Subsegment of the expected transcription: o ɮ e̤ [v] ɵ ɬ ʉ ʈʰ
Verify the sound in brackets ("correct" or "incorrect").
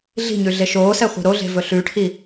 correct